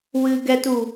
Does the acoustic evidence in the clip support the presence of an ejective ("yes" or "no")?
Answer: no